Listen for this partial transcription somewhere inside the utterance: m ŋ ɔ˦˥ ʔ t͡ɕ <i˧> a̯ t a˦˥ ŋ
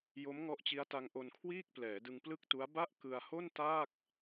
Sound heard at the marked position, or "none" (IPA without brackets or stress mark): i˦˥